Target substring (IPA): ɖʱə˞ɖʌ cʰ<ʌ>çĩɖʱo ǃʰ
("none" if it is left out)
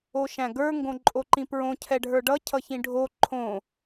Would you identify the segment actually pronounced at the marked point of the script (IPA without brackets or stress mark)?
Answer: ʌ